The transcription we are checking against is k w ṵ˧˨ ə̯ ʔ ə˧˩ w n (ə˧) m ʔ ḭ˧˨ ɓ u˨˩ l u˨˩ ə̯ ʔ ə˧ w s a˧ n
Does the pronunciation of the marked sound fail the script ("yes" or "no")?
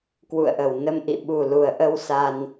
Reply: no